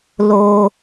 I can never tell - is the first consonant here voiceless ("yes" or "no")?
no